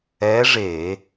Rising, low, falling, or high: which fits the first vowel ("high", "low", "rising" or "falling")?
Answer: rising